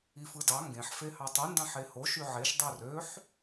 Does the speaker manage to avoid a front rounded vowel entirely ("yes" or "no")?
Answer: no